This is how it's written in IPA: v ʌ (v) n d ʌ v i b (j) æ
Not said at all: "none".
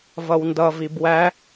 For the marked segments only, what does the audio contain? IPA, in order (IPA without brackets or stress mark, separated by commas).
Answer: w, w